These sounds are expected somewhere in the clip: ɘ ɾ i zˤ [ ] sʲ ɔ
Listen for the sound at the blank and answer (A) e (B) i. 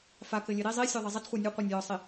B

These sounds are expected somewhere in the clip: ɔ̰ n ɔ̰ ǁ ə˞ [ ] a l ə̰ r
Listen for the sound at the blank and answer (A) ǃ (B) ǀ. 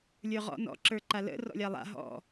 A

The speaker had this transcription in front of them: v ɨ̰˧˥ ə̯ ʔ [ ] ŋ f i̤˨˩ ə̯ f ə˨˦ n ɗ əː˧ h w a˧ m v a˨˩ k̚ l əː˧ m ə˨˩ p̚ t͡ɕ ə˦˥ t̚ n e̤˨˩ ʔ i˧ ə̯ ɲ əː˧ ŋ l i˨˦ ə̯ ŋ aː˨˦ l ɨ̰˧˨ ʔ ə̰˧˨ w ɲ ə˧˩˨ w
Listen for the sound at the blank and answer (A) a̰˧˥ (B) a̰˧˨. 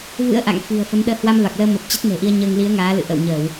B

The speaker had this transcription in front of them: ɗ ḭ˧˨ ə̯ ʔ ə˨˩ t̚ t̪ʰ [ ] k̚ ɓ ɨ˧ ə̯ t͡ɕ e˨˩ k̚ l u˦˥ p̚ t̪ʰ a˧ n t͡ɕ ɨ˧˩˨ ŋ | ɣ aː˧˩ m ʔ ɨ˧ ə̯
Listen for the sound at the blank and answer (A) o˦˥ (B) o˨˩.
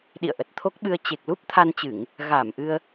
A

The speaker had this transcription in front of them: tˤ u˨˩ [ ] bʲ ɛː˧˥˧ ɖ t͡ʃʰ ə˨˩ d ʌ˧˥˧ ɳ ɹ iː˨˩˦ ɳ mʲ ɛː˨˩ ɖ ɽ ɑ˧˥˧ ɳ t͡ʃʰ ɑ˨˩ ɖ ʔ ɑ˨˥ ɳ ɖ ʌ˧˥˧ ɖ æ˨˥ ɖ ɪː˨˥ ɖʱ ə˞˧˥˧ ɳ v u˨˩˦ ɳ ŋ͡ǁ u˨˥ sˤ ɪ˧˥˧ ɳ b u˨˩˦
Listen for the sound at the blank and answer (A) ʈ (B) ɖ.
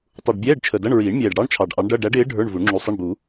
B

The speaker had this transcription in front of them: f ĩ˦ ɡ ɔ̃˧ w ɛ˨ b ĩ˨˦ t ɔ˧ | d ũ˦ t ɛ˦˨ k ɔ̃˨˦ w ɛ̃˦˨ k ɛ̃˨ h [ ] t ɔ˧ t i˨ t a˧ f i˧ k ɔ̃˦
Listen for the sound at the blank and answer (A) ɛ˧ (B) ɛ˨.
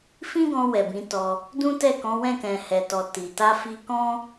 B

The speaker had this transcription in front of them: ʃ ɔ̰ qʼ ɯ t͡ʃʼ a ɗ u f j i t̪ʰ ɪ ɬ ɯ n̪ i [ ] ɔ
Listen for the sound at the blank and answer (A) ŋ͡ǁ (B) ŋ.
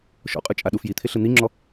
A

